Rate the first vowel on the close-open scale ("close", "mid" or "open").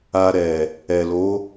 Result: open